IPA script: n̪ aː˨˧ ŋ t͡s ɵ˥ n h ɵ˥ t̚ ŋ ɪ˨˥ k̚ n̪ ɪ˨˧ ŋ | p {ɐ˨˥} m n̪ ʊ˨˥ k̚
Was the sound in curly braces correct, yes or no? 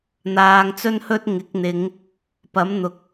yes